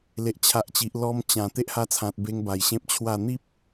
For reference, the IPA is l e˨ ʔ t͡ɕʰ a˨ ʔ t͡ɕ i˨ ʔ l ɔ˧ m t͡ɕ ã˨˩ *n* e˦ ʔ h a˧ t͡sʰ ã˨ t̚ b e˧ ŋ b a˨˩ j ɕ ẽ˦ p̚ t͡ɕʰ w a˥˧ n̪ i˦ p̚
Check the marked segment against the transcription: incorrect: t̪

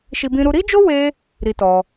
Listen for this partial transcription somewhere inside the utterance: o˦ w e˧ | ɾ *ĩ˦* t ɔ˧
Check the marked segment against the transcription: incorrect: i˦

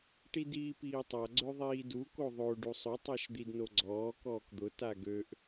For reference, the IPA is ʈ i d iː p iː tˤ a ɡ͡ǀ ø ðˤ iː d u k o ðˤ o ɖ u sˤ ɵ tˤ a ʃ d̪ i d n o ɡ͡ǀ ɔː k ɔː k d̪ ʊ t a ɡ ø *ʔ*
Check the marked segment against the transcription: correct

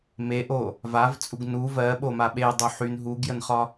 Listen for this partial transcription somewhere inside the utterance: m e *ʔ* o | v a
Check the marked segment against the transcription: correct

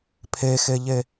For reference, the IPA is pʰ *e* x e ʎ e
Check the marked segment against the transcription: correct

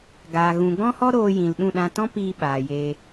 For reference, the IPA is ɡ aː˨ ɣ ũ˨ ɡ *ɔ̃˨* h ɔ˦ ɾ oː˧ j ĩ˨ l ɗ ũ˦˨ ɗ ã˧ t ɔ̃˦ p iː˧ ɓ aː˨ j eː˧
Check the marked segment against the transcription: incorrect: ɔ̃˦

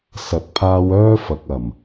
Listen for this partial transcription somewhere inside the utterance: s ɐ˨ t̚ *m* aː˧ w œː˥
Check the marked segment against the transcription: incorrect: pʰ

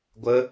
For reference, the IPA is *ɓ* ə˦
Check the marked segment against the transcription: incorrect: ɡʷ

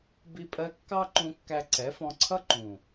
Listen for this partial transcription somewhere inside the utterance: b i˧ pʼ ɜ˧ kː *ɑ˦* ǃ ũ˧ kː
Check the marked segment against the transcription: correct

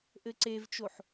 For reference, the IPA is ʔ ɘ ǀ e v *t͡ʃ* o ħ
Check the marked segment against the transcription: correct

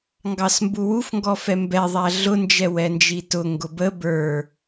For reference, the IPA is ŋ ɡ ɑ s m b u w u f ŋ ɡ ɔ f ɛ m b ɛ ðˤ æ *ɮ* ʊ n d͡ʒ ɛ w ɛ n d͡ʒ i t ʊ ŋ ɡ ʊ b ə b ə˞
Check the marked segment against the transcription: correct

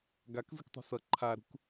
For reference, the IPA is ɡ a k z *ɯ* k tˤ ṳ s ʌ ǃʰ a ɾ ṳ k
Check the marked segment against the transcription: correct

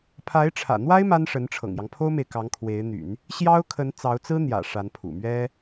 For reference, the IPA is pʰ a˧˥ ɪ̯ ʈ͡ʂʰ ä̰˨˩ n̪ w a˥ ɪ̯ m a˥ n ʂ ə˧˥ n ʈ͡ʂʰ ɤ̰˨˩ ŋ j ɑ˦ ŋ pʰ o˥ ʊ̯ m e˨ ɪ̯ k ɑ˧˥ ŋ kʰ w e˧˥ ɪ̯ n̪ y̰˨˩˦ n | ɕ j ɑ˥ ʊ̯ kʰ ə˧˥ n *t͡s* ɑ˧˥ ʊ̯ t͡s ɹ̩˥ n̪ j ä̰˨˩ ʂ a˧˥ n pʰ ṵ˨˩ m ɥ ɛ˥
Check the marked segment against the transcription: correct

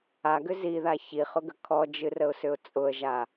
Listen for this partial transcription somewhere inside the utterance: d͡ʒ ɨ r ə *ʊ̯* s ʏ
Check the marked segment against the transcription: correct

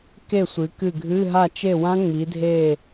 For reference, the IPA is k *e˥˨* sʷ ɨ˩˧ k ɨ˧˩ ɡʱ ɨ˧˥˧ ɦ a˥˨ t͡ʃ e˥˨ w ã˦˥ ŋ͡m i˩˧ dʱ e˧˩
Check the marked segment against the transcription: correct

